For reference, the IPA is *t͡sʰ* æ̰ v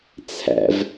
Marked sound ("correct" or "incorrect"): correct